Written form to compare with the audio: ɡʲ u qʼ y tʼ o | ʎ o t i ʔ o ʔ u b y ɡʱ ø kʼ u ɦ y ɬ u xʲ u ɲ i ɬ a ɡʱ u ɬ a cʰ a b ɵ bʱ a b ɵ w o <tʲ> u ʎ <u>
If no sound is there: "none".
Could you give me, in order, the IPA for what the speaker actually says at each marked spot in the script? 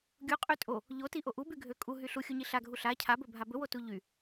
t, y

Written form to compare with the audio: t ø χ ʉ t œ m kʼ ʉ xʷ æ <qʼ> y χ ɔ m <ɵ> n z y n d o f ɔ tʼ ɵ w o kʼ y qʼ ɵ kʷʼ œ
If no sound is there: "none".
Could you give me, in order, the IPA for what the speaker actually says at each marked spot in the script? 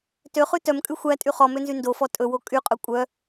tʼ, ø

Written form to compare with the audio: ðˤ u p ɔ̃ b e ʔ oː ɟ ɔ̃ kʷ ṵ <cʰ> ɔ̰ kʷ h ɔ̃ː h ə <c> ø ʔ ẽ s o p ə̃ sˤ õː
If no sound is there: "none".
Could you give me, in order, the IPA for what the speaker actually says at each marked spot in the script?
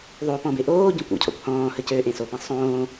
cʰ, c

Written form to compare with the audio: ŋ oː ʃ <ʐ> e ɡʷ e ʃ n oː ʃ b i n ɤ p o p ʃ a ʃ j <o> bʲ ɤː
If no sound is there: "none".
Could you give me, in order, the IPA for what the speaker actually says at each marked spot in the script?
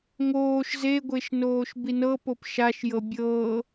z, ɤ

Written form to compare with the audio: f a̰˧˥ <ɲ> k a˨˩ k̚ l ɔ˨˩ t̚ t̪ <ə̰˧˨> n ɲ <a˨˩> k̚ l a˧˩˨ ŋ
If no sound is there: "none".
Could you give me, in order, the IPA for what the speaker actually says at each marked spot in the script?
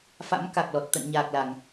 m, ə̰˧˨, aː˨˩

